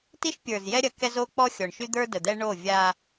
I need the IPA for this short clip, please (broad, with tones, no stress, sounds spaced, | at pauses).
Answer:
t i˦ ʃ pʲ ə˞˨ z j ɛ˦ ɾʲ ɐ˨ k ɛ˦ z o˦ k͡p ɔ˦ xʲ ɔ˨ ɳ ʃ y˦ d̪ ə˞˦ d ə˨ d̪ ɛ˦ ɳ o˦˨ vʲ a˦